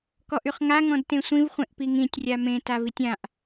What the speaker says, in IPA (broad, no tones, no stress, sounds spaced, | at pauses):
k ɔ ʔ y χ ŋ a ŋ ɔ̃ d t ẽ sʷ ĩ v χʷ ẽ ʔ p i ŋ ĩ tʲ rʲ a m ẽ t a v i tʲ ã ʔ